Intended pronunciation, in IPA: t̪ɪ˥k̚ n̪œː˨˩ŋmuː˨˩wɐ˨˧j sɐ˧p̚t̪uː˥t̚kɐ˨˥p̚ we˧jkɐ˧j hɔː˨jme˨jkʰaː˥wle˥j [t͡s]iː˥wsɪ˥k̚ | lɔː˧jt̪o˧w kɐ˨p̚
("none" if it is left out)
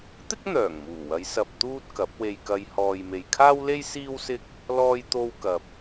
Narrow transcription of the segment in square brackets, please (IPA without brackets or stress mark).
s